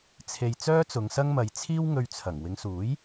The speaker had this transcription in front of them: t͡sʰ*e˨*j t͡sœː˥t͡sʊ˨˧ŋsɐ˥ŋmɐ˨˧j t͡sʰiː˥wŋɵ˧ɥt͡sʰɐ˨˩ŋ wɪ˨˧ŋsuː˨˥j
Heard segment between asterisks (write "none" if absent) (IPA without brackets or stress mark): e˨